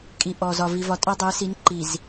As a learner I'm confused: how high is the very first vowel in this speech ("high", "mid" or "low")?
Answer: high